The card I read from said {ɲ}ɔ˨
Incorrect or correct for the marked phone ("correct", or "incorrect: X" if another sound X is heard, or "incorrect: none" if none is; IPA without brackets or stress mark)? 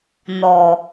incorrect: n